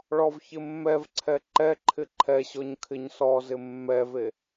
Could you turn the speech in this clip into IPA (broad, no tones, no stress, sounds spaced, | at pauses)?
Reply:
ɭ ɔ v ç ɪ mː ɛ v ǀʰ ɛ ǃ ɛ ǃʰ ɪ ǃʰ ɛ ɕ ɔ ɲ kʰ ɪ ɲ s ɔ z ɪ mː ɛ v e